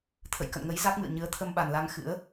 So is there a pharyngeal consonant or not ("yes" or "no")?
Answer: no